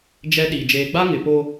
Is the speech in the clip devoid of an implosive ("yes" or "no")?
no